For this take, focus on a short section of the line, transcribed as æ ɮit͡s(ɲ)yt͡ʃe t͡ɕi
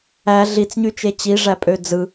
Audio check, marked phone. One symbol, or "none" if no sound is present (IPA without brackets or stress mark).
ɲ